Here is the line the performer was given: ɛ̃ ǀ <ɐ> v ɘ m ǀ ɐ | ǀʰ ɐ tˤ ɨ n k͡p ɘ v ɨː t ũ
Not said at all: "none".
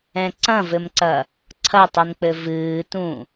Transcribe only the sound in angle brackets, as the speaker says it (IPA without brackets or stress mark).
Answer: ɐ̃